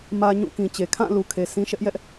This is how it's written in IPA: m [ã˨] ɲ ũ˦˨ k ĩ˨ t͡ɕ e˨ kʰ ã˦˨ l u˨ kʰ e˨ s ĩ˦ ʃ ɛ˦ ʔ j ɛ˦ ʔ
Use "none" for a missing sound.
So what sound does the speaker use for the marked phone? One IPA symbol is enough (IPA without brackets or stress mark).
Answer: ä˨